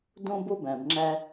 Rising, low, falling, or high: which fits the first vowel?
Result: high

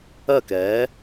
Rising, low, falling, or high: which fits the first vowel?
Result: falling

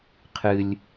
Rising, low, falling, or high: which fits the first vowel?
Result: high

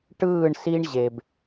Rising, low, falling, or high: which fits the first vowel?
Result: falling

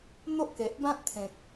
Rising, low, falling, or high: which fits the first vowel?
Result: high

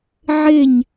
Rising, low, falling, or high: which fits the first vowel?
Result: falling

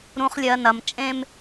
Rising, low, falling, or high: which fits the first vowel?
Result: low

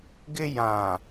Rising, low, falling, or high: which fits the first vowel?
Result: high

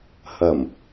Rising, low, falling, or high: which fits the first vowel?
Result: low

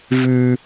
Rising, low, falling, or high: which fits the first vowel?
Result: high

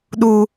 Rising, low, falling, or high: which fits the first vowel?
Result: high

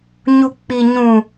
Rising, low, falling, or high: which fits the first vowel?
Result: high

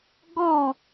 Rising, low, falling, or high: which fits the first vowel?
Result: falling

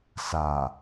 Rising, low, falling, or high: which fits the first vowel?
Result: low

